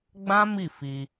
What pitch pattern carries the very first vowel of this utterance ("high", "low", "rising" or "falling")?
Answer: high